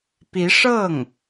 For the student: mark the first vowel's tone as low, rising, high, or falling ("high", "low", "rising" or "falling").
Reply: rising